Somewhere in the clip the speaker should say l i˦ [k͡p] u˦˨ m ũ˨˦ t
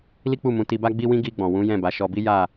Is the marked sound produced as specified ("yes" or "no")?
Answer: yes